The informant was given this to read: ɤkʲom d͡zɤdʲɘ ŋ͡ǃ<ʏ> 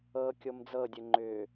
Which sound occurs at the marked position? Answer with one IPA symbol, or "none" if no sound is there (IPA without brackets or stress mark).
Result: ʏ